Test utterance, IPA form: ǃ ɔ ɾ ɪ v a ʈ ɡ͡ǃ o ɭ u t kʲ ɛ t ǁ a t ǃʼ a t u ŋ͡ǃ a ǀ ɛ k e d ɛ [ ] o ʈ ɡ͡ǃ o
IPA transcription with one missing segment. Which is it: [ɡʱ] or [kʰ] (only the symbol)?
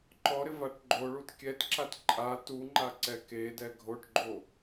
ɡʱ